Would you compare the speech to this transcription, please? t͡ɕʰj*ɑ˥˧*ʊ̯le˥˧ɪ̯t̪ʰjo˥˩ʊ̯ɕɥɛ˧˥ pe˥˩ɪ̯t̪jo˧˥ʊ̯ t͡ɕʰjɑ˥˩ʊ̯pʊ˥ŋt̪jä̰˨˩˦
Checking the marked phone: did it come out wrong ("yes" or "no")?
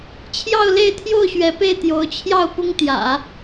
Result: no